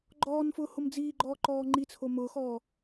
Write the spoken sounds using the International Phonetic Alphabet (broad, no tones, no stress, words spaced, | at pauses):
ɡ͡ǃɔːnfʊː homd͡ziːɡ͡ǃɔː ǃɔːŋ͡ǃit͡sʰo mʊːxɔː